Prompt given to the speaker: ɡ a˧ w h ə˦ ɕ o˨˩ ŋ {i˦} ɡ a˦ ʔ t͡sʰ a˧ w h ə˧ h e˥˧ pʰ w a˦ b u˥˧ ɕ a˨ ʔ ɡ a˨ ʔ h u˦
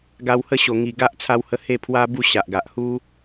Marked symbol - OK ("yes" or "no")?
no